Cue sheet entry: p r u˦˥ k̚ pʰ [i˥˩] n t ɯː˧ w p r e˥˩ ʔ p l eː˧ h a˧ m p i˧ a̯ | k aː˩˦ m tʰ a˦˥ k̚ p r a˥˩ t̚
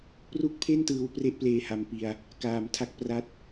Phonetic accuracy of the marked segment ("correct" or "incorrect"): incorrect